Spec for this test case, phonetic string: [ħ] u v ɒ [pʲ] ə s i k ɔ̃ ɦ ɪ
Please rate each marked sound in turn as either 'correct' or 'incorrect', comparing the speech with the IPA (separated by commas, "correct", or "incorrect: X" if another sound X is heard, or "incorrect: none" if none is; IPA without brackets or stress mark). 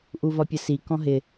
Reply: incorrect: ʔ, correct